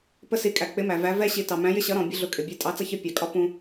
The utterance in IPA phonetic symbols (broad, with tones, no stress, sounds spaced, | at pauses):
p ə˥ s i˧˥ kʼ æ˨ k͡p ɪ˧˥ m æ˨ v æ˧˥ v ɛ˥ ɕ i˧˥ t ɑ˨ m æ̃˧˥ j ɪ˥ ɕ ʌ˧˥ ɾ ɔ̃˨ bʲ ə˥ ɮ ʊ˧˥ kʼ ɪ˨ bʲ ɛ˧˥ tʼ ɑ˧˥ t͡s ʌ˥ ç ɪ˥ pʲ ɑ˨ kʼ ɒ˥ p ũ˥